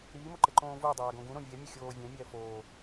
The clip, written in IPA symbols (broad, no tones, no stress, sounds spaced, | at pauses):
ɾ iː m o ǃ e ǃ õː v u dˤ aː ɡ õ ɡ ũ ɾ õ vʲ ɛ mʲ ɯ xʲ oː vʲ ɛ̃ mʲ ɛː f oː